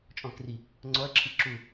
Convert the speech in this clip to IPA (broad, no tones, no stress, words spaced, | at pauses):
t͡ʃʼɔ̃kri | ŋ͡ǀɔɐ̯ǁʰi ǁu